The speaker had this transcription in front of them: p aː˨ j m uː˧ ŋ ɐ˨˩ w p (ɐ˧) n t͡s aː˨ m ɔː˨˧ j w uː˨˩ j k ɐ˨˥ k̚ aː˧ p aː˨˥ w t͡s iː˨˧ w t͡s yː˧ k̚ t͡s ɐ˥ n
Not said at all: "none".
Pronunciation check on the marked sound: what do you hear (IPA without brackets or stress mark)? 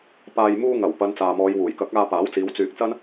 ɐ˨˧